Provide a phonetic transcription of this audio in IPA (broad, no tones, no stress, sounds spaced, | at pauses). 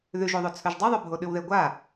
ð ʉ ʒ o ðˤ o t͡sʰ ɵ ʒ dˤ ɵ ðˤ ɵ bʱ o ɗ ʉ w ð e ɡʷ a